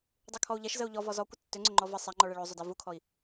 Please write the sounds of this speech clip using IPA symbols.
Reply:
dˤ u kʰ ɔ u̯ ʎ ɛ ʃ z ə u̯ ʎ ɔ v ɔ z ɔ kʷ ə tː ʏ ŋ͡ǀ ʏ ŋ͡ǃ ɔ v ə sˤ a ŋ͡ǃ ɔ ɭ ɛ ɭ o zˤ ʏ d a v u kʰ ɔ i̯

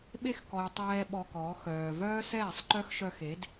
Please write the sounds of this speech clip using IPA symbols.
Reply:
ɓ e˦ x k ɔ˨ j tˤ ɛː˦ ɓ ɔ˧ k ɔː˨˦ x œː˨ v œː˦ s ɛː˦˨ sˤ ǃ œ˦ x ʃ œ˧ x e˨˦ d

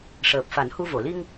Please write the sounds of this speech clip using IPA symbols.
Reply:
ʂ əː˨˩ p̚ f a˨˩˦ n h u˧ v o˨˩˨ l i˧ ŋ

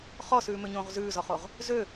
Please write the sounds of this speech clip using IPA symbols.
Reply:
χ ɔ s ʉː m ø ɲ õː ʁ z ʉː z ɔ χ o ʁ | z ø

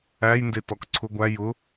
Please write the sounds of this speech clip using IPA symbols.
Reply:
æ j n d e t ɔ k ǀʰ ʊ ɡʷ æ j ʊ

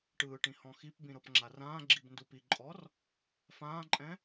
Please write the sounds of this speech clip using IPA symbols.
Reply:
ʈ ɯː ʈ ĩ h ɔ̃ x i p b ĩ ɾ ɤ p ŋ͡ǁ a r ãː ɡ͡ǁ i b n d u p i ǃʼ ɔ r | f ãː ǃʼ ɛ̃

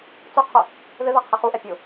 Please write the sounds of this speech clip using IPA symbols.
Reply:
t͡s o qʰ ʊ | ð ɪ ð a qʰ ɪ χ u ʔ ɛ pʲ ʊ

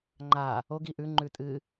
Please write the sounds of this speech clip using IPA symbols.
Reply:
ŋ͡ǃ a | o ɡ i ʔ ʉ ŋ͡ǃ ʉ tʼ ɨ

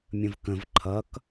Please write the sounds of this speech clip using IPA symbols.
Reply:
mʲ ə̃ v k ə̃ v ǃʰ ʌ k

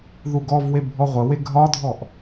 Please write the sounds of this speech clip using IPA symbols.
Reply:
ð u ɡ ɔ v w e bʱ ɔ ʁʷ ə w e ɡʱ ɒ dʱ ɔ ʔ

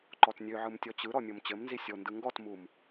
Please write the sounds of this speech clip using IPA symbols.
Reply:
ǃ ɔ t nʲ ø ʕ ɯ m tʲ ɔ t͡ɕ ɯ ɾ ɔ mʲ o m t͡ɕ ɘ m n z i sʲ o n d ɯ ŋ ɡ ɔ t m u m

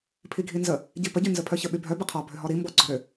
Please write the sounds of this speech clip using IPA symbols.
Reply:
pʰ i ɡʱ i n z ə | ɟ i p ə ɟ y n z ə pʰ œ ç ə ɓ y bʱ œ b ə qʰ ɔ bʱ ø ɦ ɔ ɾ i m b ɔ ɡ͡ǀ ɔ ɾ ø

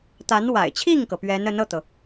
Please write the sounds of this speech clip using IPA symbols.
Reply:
t̪ a˧˥ n w a̰˨˩ ɪ̯ t͡ɕʰ i˥˩ ŋ k ɤ˩ p ɥ ɛ˧˥ n ə˧˥ n ɤ˥˩ t̪ ɤ˩

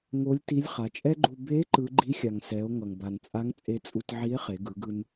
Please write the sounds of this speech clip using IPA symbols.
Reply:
ŋ o˧˥ lʲ t i˧˥ lʲ χ a˩˧ t͡ʃʼ ɛ˥ ɡ͡ǃ u˧ b e˧˥ ǃ ɯ˧˥ ɡ͡ǃ i˧˥ xʲ a˩ ŋ s ɛ˩˧ o̯ ŋ ʌ˩ ŋ b a˩ n t͡sʼ a˧˥ ŋ t͡sʼ e˧ t͡sʼ u˧ t ʕ i˧˥ e̯ χ e˩˧ ɡ ɯ˩˧ ɡ ɯ˧ n

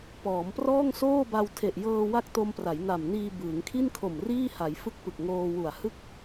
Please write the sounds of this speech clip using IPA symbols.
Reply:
p ɔː˩˦ m p r ɔː˥˩ ŋ s oː˥˩ b a˧ w tʰ e˨˩ ʔ j ɤː˧ w a˥˩ k̚ t o˧ m p r a˩˦ j n a˨˩ m n iː˧ b ɯː˩˦ ŋ kʰ i˥˩ n kʰ o˨˩ m r iː˥˩ h a˩˦ j f ɯ˦˥ k̚ p ɯ˨˩ k̚ ŋ oː˧ w u˨˩ a̯ h ɯ˥˩ k̚

